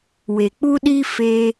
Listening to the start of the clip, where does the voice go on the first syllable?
low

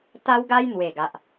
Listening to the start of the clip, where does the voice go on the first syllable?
high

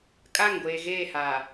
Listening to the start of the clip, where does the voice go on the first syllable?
falling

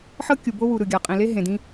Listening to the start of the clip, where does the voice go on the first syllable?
high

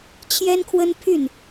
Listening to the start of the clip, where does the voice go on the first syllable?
high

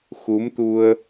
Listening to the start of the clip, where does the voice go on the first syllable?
rising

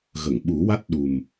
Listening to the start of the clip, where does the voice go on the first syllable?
low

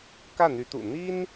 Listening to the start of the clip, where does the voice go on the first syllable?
falling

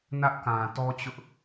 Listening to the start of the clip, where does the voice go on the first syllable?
high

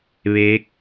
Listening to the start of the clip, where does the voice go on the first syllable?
rising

